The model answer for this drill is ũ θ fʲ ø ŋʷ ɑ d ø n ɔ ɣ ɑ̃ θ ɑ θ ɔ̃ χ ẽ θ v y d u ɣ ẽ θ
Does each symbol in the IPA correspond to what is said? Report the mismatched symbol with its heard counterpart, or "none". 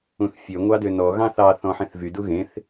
χ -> ħ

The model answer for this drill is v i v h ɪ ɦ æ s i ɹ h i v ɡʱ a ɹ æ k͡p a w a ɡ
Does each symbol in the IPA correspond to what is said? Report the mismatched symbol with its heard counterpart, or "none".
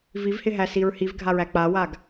none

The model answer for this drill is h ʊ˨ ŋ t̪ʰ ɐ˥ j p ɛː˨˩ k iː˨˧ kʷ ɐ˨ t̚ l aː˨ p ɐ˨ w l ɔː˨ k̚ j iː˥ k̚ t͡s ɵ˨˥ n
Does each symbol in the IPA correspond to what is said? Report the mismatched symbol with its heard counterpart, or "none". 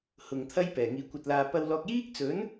k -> ŋ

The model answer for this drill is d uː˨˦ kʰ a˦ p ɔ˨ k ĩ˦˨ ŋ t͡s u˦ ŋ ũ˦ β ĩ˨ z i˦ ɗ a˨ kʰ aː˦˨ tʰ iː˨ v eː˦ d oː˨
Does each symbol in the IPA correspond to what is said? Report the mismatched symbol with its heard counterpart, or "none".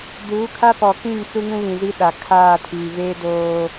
none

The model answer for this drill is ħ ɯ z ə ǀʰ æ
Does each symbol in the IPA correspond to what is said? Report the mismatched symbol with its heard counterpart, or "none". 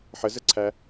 ɯ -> ə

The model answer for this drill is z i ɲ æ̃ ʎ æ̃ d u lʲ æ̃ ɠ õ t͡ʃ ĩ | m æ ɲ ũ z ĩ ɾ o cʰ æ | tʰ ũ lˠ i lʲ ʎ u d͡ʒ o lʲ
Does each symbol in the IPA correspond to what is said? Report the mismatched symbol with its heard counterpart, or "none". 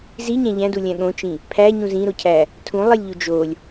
m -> pʰ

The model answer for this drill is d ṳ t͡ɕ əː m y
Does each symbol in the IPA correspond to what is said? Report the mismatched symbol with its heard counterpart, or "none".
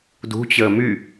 none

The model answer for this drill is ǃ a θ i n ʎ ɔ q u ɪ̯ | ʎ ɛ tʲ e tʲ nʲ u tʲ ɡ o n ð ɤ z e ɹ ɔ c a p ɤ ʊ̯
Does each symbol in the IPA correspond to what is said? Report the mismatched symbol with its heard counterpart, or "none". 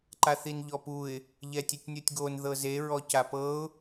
q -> p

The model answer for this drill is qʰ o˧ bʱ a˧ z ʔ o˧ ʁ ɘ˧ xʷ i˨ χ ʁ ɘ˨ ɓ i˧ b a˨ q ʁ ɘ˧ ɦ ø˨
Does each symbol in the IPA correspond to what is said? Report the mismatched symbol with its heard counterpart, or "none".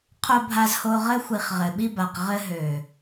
ʔ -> h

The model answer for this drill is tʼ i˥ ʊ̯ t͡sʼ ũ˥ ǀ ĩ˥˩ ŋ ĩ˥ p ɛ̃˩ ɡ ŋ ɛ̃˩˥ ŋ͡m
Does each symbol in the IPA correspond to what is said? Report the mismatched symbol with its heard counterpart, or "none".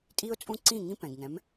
ŋ͡m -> m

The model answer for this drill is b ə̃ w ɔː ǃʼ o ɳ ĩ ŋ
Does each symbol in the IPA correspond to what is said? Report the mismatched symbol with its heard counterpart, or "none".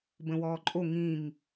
ɳ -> ŋ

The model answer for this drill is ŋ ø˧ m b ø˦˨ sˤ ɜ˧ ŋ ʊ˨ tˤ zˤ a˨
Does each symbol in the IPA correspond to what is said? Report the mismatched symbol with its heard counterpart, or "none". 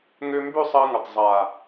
none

